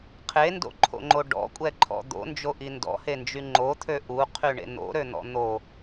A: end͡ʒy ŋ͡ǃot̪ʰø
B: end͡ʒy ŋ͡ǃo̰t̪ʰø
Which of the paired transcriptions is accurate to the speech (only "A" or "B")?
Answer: A